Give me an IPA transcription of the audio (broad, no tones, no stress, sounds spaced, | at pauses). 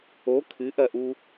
o kʰ ɨ ʔ ɐ ʔ u